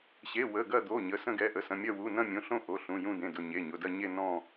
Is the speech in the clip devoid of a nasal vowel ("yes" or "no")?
no